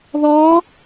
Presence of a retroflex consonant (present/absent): absent